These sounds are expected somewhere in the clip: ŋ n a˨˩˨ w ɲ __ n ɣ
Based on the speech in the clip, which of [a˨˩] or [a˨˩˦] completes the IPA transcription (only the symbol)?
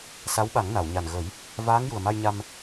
a˨˩